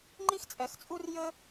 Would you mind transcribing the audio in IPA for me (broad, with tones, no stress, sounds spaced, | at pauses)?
ŋ͡ǃ i˥ x t͡sʼ ɛ˨ x t͡sʼ u˥ r j ə˥